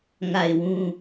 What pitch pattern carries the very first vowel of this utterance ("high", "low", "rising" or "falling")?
falling